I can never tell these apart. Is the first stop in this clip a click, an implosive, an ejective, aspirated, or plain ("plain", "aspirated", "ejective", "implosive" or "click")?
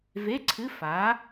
click